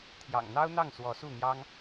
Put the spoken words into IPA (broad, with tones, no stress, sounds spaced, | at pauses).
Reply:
t̪ʰ j ɑ̰˨˩ ŋ n̪ ɑ˥ ʊ̯ n̪ ɑ˥˩ ŋ s w ɔ˧˥ s u˥˩ n̪ j ɑ˥ ŋ